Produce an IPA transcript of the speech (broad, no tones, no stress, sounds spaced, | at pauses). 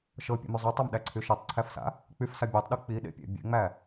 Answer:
ʃ ɤ pʲ ḛ m y zˤ o tˤ a m ɗ æ ǀʰ y ʃ ɤ tˤ ǀʰ æ f s a̰ | k͡p y f s a bʲ æ tˤ ɗ u k͡p i ɗ ḛ pʲ ḛ bʲ ḛ ŋ͡m æ